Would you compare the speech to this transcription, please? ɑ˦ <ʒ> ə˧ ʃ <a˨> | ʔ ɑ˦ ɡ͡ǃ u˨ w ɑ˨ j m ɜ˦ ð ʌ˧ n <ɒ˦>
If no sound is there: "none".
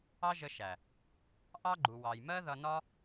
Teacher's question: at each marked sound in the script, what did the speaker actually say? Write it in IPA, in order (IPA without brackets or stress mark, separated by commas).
ʒ, æ˨, ɒ˦